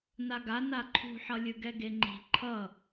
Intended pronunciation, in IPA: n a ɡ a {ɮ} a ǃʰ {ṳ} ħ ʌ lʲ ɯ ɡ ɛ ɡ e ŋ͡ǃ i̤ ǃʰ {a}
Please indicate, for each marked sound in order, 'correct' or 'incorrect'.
incorrect: n, correct, incorrect: ʌ

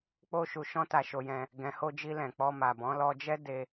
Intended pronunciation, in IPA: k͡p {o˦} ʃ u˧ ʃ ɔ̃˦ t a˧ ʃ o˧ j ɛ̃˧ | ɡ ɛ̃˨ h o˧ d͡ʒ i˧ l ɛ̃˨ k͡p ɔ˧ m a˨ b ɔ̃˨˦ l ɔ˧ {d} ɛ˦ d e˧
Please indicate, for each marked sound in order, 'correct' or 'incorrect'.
correct, incorrect: d͡ʒ

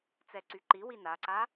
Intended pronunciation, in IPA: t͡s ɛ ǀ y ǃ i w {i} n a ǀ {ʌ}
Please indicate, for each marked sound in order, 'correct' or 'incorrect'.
correct, incorrect: a

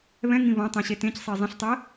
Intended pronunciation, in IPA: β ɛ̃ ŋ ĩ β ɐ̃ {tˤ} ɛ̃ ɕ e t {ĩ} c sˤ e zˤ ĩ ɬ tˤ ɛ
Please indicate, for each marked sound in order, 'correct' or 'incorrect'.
correct, incorrect: ẽ

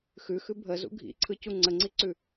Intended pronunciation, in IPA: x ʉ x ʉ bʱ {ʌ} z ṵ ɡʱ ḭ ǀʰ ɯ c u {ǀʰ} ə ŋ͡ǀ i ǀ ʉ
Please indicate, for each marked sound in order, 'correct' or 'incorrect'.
incorrect: ə, incorrect: ŋ͡ǀ

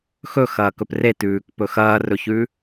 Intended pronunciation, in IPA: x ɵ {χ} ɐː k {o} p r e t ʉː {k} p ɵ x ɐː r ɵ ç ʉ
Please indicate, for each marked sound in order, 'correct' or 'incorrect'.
incorrect: x, incorrect: ɵ, correct

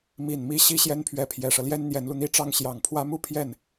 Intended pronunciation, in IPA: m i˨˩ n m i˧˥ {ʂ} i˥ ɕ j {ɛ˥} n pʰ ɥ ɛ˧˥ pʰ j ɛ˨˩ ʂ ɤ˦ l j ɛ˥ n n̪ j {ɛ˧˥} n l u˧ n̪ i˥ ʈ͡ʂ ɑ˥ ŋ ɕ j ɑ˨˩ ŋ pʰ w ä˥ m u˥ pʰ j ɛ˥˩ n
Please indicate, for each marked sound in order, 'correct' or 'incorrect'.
incorrect: ɕ, correct, correct

